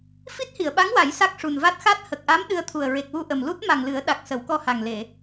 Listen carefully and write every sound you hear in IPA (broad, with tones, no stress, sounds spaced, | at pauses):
f i˦˥ t̚ h i˨˩˨ ə̯ ɓ a˧˥ ŋ w a˨˩˦ j s a˦˥ k̚ ʂ u˨˩ n v a˦˥ t̚ x a˦˥ t̚ h ə˨˩ k̚ ʔ a˧˥ m ɗ ɨ˧ ə̯ t̪ʰ u˨˩ ə̯ ɹ e˨˩ k̚ w u˧ ʔ ə˨˩ m l u˦˥ t̚ m a˨˩ ŋ l ɨ˨˩˦ ə̯ ɗ a˨˩ k̚ s ə˨˩˦ w k ɔ˧ h a˨˩ ŋ l e˨˩˨